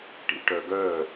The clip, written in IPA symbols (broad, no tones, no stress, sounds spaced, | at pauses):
ʈ ḭ ʈ œ ɡ œ